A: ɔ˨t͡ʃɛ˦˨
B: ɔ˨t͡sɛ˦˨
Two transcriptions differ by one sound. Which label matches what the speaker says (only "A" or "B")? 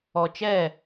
A